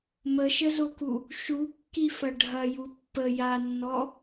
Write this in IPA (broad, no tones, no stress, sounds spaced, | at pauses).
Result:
m ə ʃ ə z o k u | ʃ u kː i f ɐ ɖʱ ɐ j u pː ə j a nː ɔ